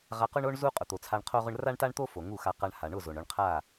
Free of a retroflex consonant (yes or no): no